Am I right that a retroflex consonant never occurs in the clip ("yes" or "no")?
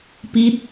yes